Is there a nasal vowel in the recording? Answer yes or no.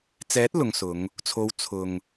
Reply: no